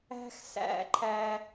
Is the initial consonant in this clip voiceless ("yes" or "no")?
yes